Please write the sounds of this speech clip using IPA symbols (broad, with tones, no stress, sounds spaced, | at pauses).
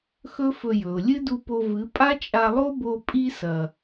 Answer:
x ɵ˦ f ɵ˧ j ɵ˨ ʊ̯ lʲ ɨ˦ d u˧ p o˧ v ɨ˨˦ pʼ a˦ t͡ʃʼ a˧ lˠ o˦ b o˧ pʼ i˦ s ɐ˨